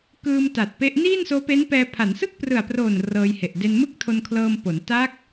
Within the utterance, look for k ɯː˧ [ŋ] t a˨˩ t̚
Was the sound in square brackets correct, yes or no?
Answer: no